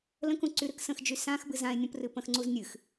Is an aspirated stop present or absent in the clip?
absent